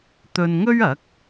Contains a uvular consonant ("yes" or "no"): no